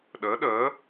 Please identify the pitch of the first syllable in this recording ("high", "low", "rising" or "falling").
rising